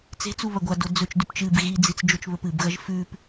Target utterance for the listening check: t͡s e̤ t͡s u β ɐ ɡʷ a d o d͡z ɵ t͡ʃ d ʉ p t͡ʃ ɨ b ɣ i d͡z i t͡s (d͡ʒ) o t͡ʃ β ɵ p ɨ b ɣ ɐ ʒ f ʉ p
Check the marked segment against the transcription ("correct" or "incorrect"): correct